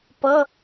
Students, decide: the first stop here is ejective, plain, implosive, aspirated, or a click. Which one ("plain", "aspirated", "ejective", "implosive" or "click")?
plain